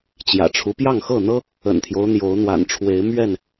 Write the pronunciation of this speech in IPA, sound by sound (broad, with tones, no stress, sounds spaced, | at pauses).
t͡ɕ j ä̰˨˩ ʈ͡ʂʰ u˦ p j ɑ˥˨ ŋ x ɤ˥˨ n̪ ɤ˦ | ə̰˨˩ n t̪ʰ j o˦ ʊ̯ n̪ j o˨˦ ʊ̯ n̪ w a̰˨˩ n ʈ͡ʂʰ w e˨˦ ɪ̯ m ɥ ɛ˥˨ n